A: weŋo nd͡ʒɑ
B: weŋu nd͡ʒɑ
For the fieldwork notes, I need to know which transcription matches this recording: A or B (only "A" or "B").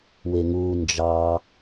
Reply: B